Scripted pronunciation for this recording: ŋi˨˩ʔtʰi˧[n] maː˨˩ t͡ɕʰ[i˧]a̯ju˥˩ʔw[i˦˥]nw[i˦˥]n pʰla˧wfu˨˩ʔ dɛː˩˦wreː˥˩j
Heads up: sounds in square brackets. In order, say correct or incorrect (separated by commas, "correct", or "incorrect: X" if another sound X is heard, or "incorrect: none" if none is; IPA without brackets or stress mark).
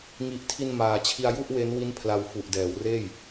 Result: correct, correct, incorrect: e˦˥, correct